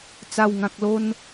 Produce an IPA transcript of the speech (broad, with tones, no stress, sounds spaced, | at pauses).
t͡s a˨˩ w ŋ ã˨ k̚ l o˧ n